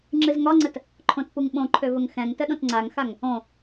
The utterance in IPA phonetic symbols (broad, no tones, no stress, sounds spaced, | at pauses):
ŋ͡ǁ ɨ z ŋ ɒ ŋ͡ǀ ə t | ǃʰ õ t p u ŋ ɓ õ ǃʰ ø v ə ŋ x ɛ̃ ŋ t ə ɗ õ t ŋ͡ǀ a ŋ x a ŋ | õ